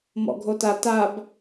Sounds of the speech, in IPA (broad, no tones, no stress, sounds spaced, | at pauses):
m ɔ̰ ɡʱ o t a t a b